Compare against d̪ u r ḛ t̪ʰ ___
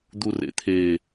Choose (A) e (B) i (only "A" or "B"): A